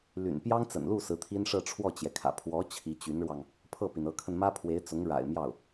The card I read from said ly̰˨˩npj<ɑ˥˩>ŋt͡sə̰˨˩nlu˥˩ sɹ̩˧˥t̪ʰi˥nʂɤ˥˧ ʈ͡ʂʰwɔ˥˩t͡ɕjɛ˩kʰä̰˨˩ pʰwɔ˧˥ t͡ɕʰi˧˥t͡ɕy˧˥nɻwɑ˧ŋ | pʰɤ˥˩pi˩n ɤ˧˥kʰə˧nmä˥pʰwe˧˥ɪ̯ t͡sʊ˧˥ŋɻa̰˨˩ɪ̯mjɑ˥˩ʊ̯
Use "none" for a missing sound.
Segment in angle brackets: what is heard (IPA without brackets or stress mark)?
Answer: ɑ˥